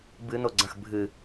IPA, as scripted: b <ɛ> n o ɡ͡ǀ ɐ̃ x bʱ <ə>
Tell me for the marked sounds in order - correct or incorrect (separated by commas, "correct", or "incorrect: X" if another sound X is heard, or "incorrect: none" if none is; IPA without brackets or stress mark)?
incorrect: ɨ, incorrect: ɨ